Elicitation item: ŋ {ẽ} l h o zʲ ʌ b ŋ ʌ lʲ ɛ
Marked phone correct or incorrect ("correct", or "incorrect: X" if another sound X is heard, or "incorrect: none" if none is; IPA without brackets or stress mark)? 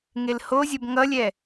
incorrect: e